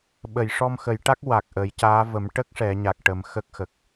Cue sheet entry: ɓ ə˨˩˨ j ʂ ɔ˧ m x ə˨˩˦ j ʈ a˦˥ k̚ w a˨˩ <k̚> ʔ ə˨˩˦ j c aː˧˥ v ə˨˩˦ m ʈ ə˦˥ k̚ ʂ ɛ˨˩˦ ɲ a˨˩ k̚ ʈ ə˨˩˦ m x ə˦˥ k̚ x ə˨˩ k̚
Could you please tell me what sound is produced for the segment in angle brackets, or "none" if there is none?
k̚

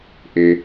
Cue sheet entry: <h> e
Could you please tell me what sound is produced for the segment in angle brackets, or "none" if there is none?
ʔ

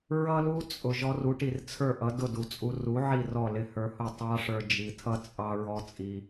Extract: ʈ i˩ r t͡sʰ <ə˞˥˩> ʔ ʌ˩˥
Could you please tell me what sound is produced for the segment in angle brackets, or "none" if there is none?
ə˞˥˩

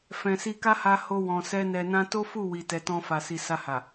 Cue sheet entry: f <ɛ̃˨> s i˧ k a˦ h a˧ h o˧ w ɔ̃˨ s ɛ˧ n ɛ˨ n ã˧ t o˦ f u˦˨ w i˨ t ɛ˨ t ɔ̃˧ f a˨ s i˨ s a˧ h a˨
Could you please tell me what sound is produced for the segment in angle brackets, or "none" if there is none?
ɛ̃˨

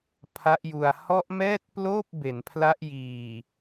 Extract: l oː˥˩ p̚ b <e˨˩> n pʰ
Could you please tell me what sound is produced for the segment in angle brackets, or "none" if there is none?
e˩˦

